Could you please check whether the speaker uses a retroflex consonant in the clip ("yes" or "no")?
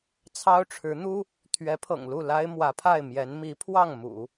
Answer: yes